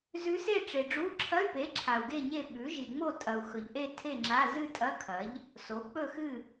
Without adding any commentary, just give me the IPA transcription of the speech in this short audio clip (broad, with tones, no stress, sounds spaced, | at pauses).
z ʉ˧˥ s e˥˨ ʈ͡ʂ e˨ ɖ͡ʐ u˧˥˧ ǁʰ ɐ˧˥˧ y̯ p e˩˥ ǁʰ a˨ u̯ ɡ e˥˨ ɲ e˥˨ ɓ ʉ˩˥ ʒ i˨ ŋ͡m o˥˨ tʼ ɐ˨ u̯ x ɵ˨ ʎ ʔ e˥˨ tʰ e˥˨ ŋ͡ǁ a˧˥˧ z ɨ˥˨ tʼ ɐ˧˥˧ kʰ ɐ˩˥ ʎ | s o˩˥ k͡p ɵ˥˨ x ɨ˥˨